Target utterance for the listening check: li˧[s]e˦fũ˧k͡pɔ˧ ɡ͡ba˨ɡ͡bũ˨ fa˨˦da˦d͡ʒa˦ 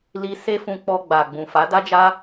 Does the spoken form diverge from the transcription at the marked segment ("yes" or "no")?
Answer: no